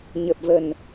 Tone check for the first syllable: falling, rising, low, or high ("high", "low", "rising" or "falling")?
low